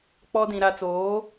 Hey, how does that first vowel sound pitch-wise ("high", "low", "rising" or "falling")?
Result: high